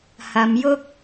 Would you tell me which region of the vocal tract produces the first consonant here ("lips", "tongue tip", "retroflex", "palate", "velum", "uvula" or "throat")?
throat